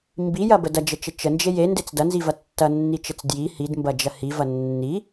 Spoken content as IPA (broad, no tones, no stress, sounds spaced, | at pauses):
m b i j ɐ b ə d ɐ d͡ʒ ə t͡ʃ ə t͡ʃ ə n d͡ʒ e j e n d e t͡s d ɐ n z i v ɐ tː ɐ nː i t͡ʃ ə t͡s d j i h i d m b ɐ d͡ʒ ɐ h i v ɐ nː i